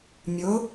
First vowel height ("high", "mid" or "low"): mid